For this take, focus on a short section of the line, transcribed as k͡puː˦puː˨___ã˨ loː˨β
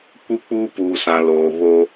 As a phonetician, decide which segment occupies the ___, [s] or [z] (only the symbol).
s